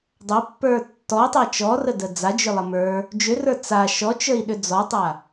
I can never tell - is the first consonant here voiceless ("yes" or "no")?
no